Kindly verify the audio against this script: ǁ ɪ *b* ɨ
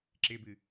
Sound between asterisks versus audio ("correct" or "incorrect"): correct